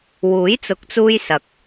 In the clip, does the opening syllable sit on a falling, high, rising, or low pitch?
rising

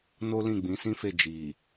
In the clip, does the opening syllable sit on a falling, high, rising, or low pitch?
high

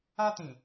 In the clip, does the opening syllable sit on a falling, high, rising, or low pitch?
high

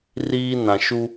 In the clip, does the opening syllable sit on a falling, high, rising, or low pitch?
high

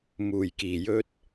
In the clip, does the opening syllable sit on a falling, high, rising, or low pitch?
low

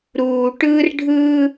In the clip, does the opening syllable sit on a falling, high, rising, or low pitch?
low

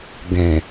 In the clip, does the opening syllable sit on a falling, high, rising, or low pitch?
low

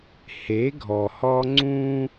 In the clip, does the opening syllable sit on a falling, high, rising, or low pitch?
rising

